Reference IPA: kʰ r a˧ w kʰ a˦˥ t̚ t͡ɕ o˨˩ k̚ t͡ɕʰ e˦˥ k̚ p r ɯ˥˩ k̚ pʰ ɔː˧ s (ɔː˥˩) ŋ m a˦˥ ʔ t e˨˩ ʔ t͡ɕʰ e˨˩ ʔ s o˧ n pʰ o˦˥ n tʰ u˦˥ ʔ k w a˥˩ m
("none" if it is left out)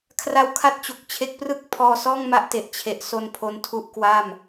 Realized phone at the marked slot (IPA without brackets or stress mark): ɔː˥˩